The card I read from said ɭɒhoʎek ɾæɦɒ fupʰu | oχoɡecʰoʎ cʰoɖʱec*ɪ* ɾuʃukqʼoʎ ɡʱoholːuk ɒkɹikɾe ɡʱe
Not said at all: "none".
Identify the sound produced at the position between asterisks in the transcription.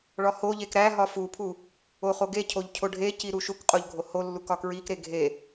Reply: i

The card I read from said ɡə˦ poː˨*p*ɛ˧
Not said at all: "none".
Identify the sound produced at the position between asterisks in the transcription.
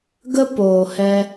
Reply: h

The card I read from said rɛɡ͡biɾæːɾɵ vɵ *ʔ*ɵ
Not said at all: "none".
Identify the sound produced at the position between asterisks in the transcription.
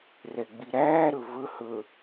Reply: h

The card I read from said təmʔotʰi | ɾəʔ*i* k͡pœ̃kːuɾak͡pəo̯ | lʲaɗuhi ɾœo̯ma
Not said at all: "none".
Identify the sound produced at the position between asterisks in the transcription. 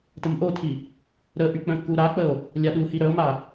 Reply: y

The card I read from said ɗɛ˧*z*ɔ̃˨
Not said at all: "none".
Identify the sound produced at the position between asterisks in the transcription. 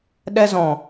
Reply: z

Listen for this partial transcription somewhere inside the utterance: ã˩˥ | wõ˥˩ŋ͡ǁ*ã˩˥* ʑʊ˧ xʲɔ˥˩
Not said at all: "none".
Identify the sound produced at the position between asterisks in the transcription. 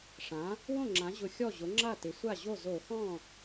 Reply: ã˩˥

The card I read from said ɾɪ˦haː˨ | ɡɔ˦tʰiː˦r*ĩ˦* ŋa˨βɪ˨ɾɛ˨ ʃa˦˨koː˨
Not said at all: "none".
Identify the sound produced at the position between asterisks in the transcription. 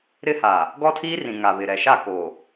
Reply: ĩ˨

